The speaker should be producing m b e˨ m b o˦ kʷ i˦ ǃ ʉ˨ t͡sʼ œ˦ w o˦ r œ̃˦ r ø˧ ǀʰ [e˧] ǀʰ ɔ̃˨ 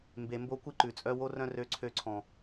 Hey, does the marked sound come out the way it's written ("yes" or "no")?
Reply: no